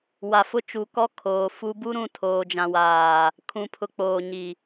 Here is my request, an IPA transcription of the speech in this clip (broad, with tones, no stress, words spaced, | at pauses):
wa˨fʊ˦ t͡ʃu˨kɔ˦ kʰoː˨fu˦ bu˦ɾũ˨ tʰoː˨d͡ʒã˨waː˨ | kʰũ˨pʰʊ˨ k͡poː˨ɲi˨